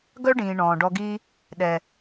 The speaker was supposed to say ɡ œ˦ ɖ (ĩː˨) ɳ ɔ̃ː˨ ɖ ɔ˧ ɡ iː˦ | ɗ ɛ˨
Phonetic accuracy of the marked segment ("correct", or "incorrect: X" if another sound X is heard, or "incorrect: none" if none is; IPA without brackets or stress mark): correct